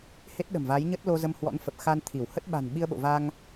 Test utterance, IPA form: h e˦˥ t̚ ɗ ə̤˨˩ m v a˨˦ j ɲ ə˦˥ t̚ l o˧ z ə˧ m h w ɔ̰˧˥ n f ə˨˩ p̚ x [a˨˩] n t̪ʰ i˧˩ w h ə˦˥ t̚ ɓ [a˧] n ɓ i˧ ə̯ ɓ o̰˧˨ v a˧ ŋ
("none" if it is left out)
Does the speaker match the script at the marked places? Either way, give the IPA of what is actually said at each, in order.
a˧, a̤˨˩

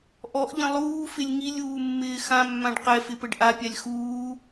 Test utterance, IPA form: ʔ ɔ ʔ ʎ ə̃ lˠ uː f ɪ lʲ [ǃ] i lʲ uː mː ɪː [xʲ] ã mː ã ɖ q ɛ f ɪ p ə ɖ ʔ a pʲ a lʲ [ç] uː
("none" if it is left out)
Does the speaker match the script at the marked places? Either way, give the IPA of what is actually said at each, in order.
ŋ, x, x

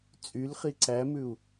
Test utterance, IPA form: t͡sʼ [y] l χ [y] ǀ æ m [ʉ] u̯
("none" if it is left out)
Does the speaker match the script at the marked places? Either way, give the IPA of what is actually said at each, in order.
y, i, ʉ

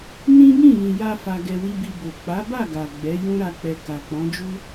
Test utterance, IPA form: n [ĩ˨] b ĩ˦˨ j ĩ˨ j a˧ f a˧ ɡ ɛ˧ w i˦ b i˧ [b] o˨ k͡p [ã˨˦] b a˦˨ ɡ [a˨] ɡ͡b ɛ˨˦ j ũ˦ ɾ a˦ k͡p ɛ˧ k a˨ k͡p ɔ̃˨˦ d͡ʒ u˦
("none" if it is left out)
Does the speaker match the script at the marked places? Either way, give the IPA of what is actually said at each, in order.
ĩ˦, b, a˨˦, a˨

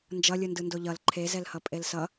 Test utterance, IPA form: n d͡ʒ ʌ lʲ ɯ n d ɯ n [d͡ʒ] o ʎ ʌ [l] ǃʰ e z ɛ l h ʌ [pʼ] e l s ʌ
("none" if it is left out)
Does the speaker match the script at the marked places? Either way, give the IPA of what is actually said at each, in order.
d, l, pʼ

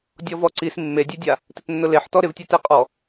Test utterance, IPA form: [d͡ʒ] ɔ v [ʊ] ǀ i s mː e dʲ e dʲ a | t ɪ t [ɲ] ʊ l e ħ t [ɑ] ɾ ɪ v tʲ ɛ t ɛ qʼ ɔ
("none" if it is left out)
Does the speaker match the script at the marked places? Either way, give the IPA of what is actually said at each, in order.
dʲ, ɔ, nː, ɔ

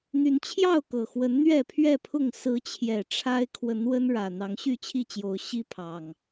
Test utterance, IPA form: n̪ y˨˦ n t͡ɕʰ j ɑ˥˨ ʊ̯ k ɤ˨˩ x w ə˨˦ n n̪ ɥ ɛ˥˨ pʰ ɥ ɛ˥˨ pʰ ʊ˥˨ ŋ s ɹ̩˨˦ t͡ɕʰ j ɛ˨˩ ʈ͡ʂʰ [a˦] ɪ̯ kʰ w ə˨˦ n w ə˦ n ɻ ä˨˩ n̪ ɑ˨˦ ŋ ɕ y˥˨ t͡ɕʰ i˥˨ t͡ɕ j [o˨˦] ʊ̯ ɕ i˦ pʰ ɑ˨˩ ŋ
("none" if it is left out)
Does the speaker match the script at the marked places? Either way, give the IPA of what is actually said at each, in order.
a˦, o˨˦

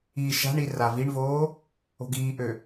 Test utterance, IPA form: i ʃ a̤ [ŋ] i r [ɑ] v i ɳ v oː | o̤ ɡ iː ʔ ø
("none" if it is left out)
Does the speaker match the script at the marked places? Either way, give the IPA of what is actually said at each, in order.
ɳ, a

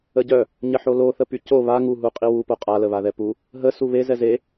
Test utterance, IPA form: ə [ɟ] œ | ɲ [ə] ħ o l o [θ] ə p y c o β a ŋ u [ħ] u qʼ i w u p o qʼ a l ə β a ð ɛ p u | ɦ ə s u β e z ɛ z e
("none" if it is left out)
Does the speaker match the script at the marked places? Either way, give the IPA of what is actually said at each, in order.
ɟ, ə, θ, ɦ

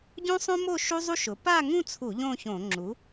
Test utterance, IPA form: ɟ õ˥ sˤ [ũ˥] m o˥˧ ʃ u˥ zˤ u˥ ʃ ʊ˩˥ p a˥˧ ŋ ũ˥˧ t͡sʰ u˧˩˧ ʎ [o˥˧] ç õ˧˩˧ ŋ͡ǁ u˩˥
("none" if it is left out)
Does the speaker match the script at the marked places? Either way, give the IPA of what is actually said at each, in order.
õ˥, õ˥˧

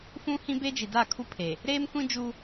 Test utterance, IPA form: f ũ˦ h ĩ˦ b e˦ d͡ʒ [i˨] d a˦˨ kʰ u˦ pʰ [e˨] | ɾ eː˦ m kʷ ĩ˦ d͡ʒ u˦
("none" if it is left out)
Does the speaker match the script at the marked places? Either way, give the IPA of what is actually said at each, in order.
i˨, e˨

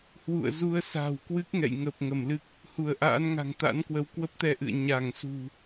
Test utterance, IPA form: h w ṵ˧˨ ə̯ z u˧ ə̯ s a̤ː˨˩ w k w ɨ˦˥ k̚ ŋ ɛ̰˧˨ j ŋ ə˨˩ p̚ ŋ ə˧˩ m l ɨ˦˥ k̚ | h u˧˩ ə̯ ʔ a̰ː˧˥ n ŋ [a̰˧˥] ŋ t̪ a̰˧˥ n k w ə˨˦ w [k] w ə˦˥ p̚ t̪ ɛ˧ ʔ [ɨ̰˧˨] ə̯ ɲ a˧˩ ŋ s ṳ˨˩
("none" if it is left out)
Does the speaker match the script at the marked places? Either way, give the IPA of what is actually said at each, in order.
a̤˨˩, k, ɨ̰˧˨

